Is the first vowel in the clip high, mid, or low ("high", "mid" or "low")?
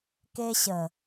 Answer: mid